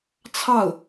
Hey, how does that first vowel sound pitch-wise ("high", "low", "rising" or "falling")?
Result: falling